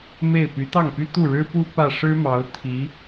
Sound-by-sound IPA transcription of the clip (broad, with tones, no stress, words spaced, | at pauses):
me˥˩ɪ̯ py˧˥t̪ɑ˥˩ŋpy˥ t̪u˥˩ɻɻ̩˥pu˥ pä˥˩ ʂɻ̩˥mɑ˧˥ʊ̯ t̪ʰi˧˥